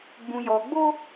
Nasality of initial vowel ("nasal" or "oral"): nasal